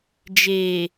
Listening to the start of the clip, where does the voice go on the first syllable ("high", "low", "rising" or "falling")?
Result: low